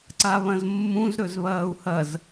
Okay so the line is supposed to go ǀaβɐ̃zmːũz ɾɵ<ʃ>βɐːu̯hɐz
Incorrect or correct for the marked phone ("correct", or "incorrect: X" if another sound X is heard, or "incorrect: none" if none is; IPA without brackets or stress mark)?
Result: incorrect: z